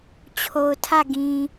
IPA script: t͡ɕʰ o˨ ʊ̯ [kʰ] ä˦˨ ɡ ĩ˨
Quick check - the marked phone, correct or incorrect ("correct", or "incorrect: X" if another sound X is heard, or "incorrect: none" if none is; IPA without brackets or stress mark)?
incorrect: tʰ